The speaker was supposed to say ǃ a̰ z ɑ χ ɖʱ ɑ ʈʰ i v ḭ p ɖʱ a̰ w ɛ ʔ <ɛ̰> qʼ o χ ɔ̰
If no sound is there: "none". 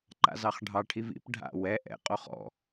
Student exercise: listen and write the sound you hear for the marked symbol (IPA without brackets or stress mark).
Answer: ɛ̰